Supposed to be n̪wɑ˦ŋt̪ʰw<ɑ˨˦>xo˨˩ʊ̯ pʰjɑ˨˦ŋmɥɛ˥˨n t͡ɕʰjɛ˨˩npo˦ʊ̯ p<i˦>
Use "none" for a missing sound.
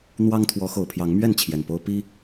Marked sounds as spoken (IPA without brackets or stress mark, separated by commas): ɔ˨˦, i˦